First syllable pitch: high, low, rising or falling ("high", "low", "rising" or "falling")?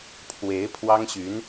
rising